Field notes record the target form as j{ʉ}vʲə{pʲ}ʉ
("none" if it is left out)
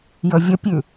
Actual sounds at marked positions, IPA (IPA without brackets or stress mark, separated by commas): ə, pʲ